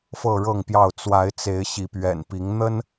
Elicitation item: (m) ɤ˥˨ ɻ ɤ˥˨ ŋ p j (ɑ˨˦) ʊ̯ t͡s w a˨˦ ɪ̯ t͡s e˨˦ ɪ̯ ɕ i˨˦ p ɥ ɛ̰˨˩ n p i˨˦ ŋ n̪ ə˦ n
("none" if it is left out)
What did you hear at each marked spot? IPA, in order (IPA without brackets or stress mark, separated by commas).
f, ɑ˥˨